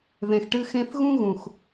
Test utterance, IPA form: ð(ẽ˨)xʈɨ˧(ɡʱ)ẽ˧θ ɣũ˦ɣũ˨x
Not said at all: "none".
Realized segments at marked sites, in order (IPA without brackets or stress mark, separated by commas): ẽ˨, x